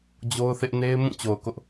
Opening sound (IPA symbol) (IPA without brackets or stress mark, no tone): d͡ʑ